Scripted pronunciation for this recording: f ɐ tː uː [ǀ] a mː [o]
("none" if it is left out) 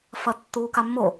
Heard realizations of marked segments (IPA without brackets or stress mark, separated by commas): k, o